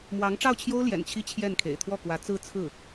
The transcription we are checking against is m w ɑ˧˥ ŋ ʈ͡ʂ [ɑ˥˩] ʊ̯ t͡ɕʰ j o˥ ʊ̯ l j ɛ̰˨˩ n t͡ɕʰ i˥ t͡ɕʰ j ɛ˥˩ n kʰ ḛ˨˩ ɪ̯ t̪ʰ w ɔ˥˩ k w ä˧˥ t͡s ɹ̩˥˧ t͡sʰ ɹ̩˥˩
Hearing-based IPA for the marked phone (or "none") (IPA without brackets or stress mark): ɑ˥˩